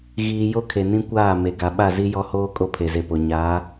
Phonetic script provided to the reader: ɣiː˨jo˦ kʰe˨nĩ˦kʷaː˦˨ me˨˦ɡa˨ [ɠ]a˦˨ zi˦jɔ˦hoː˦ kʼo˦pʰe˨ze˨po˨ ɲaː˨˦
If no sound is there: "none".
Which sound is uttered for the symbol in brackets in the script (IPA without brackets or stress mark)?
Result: ɓ